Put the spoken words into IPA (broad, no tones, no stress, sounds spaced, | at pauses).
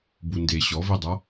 b u n d e ɕ ɔ v i dˤ a